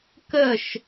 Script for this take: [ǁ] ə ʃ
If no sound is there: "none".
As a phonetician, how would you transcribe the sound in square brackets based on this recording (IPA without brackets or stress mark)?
k